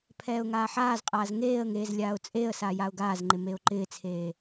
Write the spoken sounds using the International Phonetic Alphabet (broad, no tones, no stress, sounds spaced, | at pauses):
pʰ ɛː ʊ̯ ŋ aː ħ aː z qʼ aː z ŋ eː ə̯ ŋ eː z lʲ aː ʊ̯ t͡sʼ e ə̯ s a j a ʊ̯ ɡ aː z ŋ͡ǃ ɪ m e ʊ̯ ǃ ɪː t͡sʰ eː